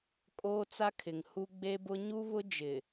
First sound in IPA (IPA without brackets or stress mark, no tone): kʼ